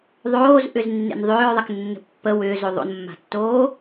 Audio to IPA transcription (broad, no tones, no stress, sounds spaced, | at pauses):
ðˤ oː z ʔ ʏ z nː ḛ n ðˤ ʏː ɹ ðˤ a k nː ə̤ pː ə w ʏː z o ðˤ o̰ n mː a̤ tː oː